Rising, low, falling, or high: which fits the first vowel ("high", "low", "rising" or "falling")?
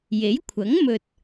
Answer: rising